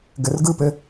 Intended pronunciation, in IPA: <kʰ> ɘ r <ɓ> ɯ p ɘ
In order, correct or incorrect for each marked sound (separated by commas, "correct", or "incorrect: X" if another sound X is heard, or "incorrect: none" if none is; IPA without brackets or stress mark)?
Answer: incorrect: ɡ, incorrect: ɡ